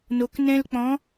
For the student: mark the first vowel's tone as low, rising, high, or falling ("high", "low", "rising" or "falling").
rising